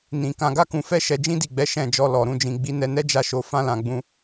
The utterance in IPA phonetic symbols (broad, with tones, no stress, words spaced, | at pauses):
nĩ˨ kã˧ɡa˦kũ˧fɛ˦ ʃɛ˧d͡ʒĩ˦di˦˨ɡ͡bɛ˨˦ ʃɛ̃˦˨d͡ʒɔ˧ lɔ˨ɾũ˧ d͡ʒĩ˨ɡ͡bi˨˦nɛ˧nɛ˦ d͡ʒa˦˨ʃo˨˦fã˦ lã˧ɡ͡bũ˦